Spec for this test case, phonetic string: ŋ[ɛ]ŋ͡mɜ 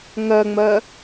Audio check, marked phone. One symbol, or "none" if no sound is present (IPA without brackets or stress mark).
ɜ